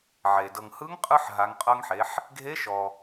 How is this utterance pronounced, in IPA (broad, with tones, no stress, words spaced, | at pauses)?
ʕe˩ dɤ˩ŋhɯ˧˥ŋqʼɯ˧ħ ɦa˩˧ŋqʼɤ˧ŋħe˩˧ħ | ɡʱe˧˥ʃɔ˩